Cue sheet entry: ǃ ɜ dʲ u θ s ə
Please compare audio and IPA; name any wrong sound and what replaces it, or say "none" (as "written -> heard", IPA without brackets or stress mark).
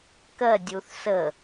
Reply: ǃ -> k